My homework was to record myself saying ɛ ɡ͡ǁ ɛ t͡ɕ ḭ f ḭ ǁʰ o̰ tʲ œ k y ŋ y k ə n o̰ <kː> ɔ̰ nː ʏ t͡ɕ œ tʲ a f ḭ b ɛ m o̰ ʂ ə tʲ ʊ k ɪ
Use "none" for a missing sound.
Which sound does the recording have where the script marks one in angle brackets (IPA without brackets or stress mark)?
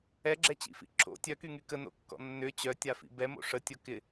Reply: kː